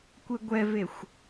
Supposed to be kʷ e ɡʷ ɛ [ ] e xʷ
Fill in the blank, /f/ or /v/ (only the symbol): v